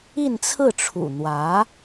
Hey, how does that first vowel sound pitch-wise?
falling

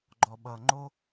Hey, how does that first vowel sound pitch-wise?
low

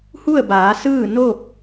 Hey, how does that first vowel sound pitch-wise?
falling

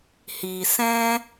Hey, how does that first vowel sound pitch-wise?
low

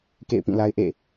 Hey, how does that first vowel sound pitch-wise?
falling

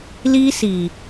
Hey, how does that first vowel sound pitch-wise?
high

